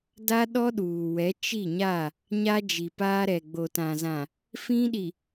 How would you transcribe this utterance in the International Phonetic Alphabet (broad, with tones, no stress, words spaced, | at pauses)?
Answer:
da˦ɗɔ˦ɗuː˨wɛ˨˦ t͡ʃi˦˨ɲa˦˨ | ɲa˦ d͡ʒi˨paː˦ɾɛ˨ ɡ͡bo˨tã˨zã˨ | fĩ˦ɗi˨